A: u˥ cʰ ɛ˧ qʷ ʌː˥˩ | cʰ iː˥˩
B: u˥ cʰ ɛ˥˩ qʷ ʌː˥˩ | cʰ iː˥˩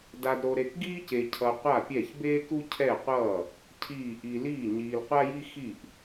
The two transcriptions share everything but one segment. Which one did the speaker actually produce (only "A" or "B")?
B